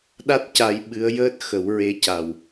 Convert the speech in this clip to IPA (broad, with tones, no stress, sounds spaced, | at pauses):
ɗ a˦˥ t̚ c a˨˩˦ j ɓ ɨ˧˥ ə̯ j əː˦˥ t̚ x ə˨˩˦ w ɹ e˧˥ c a˨˩˨ w